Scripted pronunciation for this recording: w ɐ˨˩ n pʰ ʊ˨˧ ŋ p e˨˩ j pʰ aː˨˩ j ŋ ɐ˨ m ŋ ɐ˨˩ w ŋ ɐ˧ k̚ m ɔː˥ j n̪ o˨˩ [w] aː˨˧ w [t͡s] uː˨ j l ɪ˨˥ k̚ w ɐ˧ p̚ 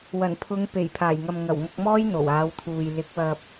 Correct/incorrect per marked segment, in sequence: correct, incorrect: t̪ʰ

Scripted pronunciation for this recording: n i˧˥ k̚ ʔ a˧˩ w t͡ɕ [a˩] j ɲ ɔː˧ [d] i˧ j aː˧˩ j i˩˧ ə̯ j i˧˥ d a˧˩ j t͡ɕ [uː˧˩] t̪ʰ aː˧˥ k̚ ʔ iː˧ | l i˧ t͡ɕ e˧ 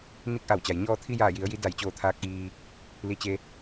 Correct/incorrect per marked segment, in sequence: correct, incorrect: t̪ʰ, incorrect: oː˧˩

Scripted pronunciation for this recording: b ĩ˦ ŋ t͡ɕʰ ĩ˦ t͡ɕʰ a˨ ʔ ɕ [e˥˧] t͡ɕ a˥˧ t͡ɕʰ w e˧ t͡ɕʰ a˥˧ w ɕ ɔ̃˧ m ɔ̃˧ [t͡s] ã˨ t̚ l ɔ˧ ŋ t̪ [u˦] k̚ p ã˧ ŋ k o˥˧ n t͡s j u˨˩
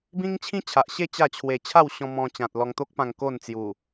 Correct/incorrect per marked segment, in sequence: correct, incorrect: t͡ɕ, incorrect: o˦

